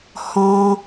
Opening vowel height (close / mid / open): mid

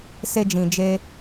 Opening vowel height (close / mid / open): mid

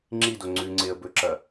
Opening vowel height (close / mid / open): close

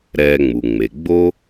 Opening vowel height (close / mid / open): mid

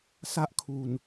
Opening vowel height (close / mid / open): open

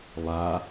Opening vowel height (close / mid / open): open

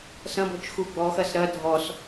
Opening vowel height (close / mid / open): open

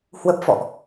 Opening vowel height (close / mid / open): mid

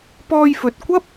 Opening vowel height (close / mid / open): mid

